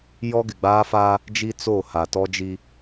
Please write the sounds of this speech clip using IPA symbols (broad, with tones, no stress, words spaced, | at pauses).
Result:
jɔ˦ɡɪ˨ɡ͡baː˦fa˦ | d͡ʒi˦t͡so˦˨ ha˨tɔ˦d͡ʒi˦